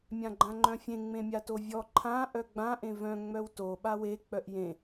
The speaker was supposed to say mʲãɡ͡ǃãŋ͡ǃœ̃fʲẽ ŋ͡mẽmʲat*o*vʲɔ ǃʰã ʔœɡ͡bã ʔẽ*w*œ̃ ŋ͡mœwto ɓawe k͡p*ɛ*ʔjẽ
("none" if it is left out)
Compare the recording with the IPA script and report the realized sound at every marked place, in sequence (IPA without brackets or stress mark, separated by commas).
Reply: o, v, œ